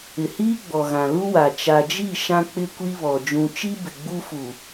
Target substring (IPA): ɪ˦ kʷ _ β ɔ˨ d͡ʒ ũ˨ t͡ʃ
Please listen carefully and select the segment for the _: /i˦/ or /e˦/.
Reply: i˦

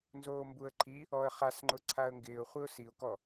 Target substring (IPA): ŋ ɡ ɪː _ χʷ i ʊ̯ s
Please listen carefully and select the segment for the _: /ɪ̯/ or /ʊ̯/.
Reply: ʊ̯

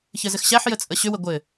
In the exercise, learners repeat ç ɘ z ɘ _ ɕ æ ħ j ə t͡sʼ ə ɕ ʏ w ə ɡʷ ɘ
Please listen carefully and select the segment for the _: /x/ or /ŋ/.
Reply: x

